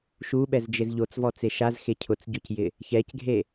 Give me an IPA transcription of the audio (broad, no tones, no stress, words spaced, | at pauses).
ʃuɓɛzd͡ʒɪz ʎot͡svɔt͡se ʃazxe cʰʊt͡sɟocjɪ | çɛcɡʱe